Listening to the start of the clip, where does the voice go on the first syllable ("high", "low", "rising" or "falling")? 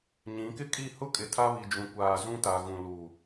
rising